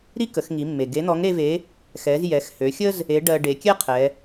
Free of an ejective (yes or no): yes